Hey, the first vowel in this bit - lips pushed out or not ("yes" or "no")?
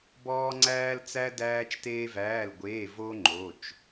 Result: yes